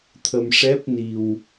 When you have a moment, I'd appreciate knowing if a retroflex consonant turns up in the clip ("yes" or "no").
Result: yes